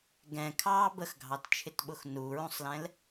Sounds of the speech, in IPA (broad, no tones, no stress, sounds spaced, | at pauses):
ɡ ɛ̃ kʰ ɑː b ə x ɡʱ ɑ t t͡ʃʰ ɪ t ɓ ʊ x n u ɹ ũ sˤ l ɛ̃ l